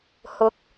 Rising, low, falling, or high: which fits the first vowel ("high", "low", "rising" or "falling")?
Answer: rising